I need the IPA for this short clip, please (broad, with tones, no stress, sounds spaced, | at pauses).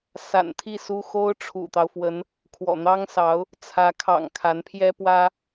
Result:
s a̰˨˩ n t̪ʰ i˥˩ s u˥ x o˥ ʊ̯ ʈ͡ʂʰ ṵ˨˩ t̪ ɑ˦ ʊ̯ f w ə˧˥ n | kʰ w ɔ̰˨˩ n̪ ɑ˥ ŋ s ɑ˧˥ ʊ̯ | t͡sʰ ä˧˥ kʰ ɑ̰˨˩ ŋ kʰ a˧˥ n pʰ j ɛ˥ p w ä˥